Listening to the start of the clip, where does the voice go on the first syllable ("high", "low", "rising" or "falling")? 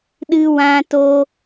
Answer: high